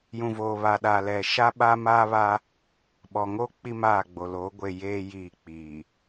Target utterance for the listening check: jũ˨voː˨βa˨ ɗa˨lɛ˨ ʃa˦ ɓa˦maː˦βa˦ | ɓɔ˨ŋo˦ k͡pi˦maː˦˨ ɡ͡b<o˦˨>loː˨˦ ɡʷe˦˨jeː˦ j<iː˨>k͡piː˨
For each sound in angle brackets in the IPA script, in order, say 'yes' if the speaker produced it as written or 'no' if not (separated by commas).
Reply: no, no